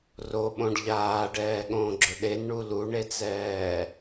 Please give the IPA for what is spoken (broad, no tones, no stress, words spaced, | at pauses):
roɓõɖ ʎaːɖɛːɠõːɡ͡ǁʊ ɗenɳu luɳet͡sɛː